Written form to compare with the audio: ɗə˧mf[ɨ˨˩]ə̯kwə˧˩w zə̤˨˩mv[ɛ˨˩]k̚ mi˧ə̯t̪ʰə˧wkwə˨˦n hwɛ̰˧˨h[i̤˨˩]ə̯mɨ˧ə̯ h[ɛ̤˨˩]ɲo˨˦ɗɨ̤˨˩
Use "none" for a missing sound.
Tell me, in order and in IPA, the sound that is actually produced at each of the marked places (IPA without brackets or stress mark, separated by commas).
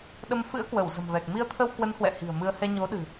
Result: ɨ̰˧˥, ɛ˨˩, i̤˨˩, ɛ˧